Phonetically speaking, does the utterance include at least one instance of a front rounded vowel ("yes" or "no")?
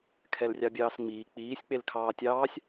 no